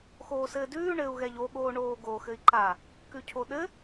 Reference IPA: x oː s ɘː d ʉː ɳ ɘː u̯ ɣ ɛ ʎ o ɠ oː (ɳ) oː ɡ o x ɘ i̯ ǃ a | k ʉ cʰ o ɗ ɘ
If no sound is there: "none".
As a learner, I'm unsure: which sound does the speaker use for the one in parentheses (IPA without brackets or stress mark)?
ɳ